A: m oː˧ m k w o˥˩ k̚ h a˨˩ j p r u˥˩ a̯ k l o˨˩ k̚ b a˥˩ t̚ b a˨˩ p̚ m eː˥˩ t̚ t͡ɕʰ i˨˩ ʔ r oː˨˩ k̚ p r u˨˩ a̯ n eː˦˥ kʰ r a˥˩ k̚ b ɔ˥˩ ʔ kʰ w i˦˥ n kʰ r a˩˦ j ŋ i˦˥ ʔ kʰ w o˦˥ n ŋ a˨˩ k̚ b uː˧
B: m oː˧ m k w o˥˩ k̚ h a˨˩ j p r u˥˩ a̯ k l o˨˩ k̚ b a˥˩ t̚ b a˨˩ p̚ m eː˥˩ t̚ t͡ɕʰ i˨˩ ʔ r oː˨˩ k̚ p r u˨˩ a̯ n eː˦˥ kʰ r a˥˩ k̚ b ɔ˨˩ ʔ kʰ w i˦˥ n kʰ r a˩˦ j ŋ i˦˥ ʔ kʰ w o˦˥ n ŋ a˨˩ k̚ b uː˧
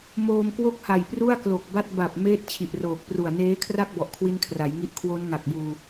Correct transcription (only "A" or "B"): B